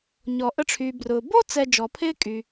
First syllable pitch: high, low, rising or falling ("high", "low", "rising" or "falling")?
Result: low